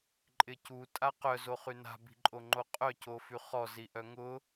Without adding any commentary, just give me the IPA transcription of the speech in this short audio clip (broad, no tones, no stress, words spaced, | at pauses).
ǃʼɪcu tʼaqœ zoχyna̤ bi̤ǃʼoŋ͡ǃoqʼœ cofyχɔ ziʔœŋʊ